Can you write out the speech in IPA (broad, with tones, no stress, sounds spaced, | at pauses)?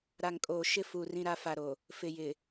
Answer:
ɾ a˨ ŋ kʼ oː˨ ʃ ɪ˦ f u˨ r ĩ˦ ɾ a˦ f a˨ ɾ o˨ | f ɪ˨ j ɪ˨